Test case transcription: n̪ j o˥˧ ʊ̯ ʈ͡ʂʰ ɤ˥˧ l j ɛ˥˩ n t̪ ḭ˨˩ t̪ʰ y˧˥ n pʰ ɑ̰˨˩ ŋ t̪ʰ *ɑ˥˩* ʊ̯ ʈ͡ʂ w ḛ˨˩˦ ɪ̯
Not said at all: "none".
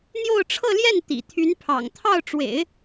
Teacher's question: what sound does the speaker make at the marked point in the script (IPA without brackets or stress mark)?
ɑ˥˩